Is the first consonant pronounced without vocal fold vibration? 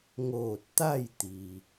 no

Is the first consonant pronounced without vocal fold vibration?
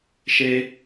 yes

